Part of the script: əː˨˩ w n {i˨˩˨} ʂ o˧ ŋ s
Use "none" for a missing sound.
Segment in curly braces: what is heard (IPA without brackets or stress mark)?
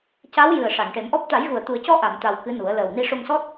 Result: i˧